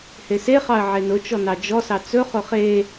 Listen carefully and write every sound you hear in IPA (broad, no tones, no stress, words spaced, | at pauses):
heseχɑə̯ ʕenʊt͡ʃɔ nɑd͡ʒɔsɑ t͡sɵχʊ χe